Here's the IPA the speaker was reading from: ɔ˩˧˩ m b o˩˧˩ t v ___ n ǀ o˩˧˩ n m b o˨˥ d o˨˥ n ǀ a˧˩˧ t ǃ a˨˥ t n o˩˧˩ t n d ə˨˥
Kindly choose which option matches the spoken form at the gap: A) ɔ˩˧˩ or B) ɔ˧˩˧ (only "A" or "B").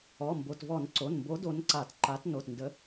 B